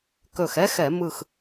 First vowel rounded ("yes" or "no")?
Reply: yes